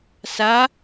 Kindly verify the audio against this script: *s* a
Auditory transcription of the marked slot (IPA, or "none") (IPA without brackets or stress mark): s